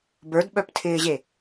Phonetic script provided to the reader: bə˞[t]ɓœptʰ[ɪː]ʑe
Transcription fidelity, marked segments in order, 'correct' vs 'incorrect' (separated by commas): incorrect, correct